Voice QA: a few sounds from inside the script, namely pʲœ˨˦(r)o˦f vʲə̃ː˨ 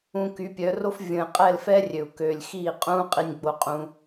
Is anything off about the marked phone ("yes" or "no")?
no